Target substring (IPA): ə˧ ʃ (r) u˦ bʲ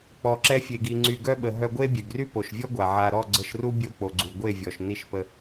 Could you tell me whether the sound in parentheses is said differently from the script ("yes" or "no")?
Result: no